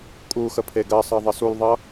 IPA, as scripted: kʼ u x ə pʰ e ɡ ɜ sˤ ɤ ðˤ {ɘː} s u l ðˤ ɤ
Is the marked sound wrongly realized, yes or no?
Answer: yes